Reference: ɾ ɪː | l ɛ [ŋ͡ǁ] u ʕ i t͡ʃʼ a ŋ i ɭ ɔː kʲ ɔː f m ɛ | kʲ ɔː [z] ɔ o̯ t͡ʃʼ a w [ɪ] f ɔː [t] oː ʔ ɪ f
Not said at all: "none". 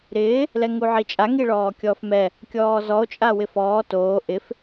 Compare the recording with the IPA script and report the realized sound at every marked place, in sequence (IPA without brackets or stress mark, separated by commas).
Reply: ŋ, z, ɪ, t